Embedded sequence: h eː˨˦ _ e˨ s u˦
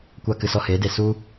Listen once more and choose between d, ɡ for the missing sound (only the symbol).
d